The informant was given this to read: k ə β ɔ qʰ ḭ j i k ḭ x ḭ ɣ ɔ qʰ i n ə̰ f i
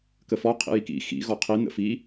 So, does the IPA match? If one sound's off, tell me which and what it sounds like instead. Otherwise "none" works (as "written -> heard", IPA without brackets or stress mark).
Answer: β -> f